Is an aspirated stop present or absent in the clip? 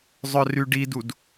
absent